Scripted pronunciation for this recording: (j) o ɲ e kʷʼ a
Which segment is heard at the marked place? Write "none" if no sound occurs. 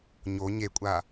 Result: ɲ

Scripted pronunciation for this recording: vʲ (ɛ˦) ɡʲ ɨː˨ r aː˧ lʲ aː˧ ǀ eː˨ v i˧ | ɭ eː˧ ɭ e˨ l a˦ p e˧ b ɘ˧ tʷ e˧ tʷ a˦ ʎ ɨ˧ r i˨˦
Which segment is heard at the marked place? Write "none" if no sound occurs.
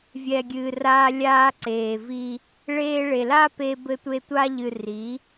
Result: ɛ˨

